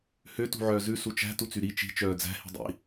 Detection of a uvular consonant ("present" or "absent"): absent